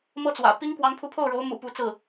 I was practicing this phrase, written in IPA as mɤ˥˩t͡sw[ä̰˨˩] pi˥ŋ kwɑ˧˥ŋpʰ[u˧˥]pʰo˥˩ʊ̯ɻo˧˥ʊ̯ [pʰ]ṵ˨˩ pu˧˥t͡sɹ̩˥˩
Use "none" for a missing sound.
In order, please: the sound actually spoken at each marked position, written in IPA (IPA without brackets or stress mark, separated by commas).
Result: ä̰˨˩, u˧˥, m